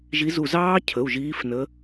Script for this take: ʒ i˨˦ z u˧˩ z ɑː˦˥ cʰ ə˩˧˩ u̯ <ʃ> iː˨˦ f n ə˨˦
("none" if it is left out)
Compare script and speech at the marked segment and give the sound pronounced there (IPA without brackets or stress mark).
ʒ